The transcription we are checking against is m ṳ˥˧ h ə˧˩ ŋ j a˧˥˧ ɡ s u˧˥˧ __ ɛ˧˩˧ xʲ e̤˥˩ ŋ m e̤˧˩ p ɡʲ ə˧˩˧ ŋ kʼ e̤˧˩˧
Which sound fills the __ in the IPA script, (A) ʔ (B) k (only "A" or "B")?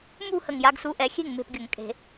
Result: A